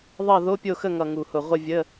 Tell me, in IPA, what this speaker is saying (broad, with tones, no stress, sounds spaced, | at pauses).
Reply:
ðˤ ʌ˦˨ ð o˧˥˧ pʲ o˦˨ x ə˦˨ ŋ ʌ˨˩ ŋ u˨˩ h ʊ˨˩ ʁʷ ə˦˨ vʲ ə˧˥˧